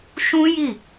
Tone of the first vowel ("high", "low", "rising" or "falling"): high